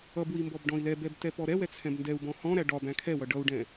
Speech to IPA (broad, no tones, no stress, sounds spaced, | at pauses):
ʌ b w i m b ɔ b ɖ ɔ̃ i̯ l ɛ b ɛ b t ɛ p ɔ ɾ ɛ w ɛ t͡sʰ ɛ̃ b n d ɛ u̯ b ɔ̃ h ɔ̃ ɾ æ ɖ ɒ b æ̃ kʰ ɛ w ʌ ɖ ʌ u̯ ɖ ɛ̃